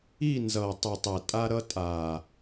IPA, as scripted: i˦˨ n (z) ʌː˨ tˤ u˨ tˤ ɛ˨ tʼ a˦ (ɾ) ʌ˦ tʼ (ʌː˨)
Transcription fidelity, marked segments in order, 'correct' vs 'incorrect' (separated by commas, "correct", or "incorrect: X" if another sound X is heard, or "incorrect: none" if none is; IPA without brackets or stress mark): correct, correct, incorrect: aː˨